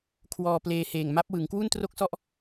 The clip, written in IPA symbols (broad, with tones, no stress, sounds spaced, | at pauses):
kʰ w ɔː˧ p l eː˧ h eː˨˩ ŋ m a˦˥ p̚ w ɯ˩˦ ŋ k w u˥˩ n t r o˥˩ k̚ s ɔ˥˩ ʔ